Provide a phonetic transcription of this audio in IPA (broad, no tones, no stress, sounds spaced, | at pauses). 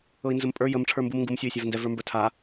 ɤ i̯ n z ə m pʼ ə˞ j ə m ʈ͡ʂʰ ə˞ m b u m ŋ ɡ u m sʲ o i̯ sʲ a v n d ɛ v ə˞ m b ə˞ tʰ a